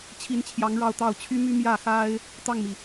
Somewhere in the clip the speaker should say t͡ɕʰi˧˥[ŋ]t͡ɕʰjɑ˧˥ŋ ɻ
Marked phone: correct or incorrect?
incorrect